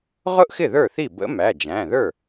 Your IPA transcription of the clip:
ʁʊ˥ʔxɪ˥˩ ðə˞˥˩θi˥˩ bə̰˧˥mæ˩˧˩d͡ʒæ̃˩˧˩ ðə˞˥˩

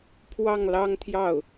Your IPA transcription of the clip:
pʰwɑ˥˩ŋlɑ˥ŋt̪ʰjɑ˥˩ʊ̯

